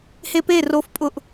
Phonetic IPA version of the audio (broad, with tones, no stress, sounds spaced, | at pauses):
h e˧ p e˦˨ r o˧ f pʼ ʊ˧ ʔ